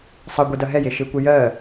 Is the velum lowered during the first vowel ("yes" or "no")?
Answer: no